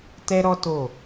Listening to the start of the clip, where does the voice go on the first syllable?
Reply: high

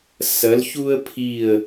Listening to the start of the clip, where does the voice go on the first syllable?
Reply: rising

